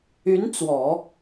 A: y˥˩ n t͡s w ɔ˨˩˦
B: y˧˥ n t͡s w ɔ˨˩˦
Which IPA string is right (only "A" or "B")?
B